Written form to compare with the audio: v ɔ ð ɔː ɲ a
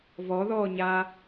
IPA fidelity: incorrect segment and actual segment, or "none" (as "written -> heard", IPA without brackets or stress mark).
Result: none